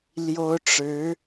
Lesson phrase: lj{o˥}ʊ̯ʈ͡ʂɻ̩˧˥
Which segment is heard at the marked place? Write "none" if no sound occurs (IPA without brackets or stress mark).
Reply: o˥